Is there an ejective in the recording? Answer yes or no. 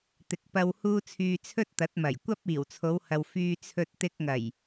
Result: no